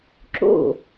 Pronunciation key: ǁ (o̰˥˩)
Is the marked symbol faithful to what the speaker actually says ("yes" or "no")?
yes